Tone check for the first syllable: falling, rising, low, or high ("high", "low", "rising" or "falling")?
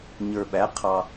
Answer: low